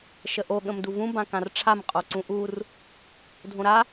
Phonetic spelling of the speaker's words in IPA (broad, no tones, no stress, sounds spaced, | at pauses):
ʃ ə ʔ o ɠ ə̃ m d u v ũ b ã k ã r ʈ͡ʂʰ a m qʼ o ǀ ũ ʔ u r | dʱ õ ɾ a